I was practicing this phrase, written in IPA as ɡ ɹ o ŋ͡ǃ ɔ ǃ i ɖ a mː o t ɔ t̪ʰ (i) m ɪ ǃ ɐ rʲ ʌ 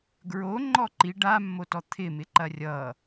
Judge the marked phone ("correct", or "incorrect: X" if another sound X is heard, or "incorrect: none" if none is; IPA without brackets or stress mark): incorrect: ɪ